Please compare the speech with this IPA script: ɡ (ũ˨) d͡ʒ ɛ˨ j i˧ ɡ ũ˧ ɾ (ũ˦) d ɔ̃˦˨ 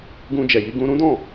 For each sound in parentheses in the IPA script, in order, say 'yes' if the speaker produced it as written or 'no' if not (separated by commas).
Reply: no, yes